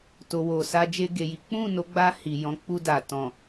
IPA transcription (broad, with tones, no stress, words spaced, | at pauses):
to˨wo˨ sa˧d͡ʒe˧ɡe˨ji˨˦ k͡pũ˦˨no˨˦ɡ͡ba˧ hi˨jɔ̃˨˦k͡pu˧da˨ tɔ̃˨